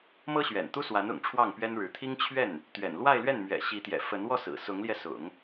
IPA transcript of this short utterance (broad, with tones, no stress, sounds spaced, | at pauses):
m ɤ˥ ɕ ɥ ɛ̰˨˩ n t̪ u˥ s w a˧˥ n ʊ̰˨˩ ŋ ʈ͡ʂʰ w ɑ˥˩ ŋ p ɥ ɛ˥ n ɻ ɻ̩˧˥ t̪ʰ i˥ ŋ t͡ɕʰ ɥ ɛ˥˩ n | t̪ ɥ ɛ̰˨˩ n l w a˥˧ ɪ̯ l ɥ ɛ˥˩ n m ɥ ɛ̰˨˩ ɕ i˧˥ t̪ j ɛ̰˨˩ f ə˧˥ n w ɔ˥˩ s ɹ̩˨˩ s ʊ˧˥ ŋ l j ɛ˧ s ʊ̰˨˩˦ ŋ